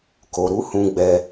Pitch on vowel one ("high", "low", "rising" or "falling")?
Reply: low